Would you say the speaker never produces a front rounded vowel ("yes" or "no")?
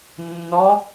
yes